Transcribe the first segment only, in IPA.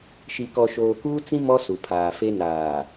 ʃ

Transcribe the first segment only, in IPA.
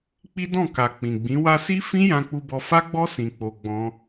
k͡p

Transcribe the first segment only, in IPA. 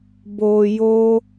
b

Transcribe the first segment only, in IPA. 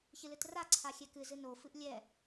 ç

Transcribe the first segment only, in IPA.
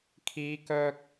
kʰ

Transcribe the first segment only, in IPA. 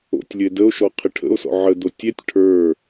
o̰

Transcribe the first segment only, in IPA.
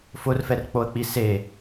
f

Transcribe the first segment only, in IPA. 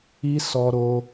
i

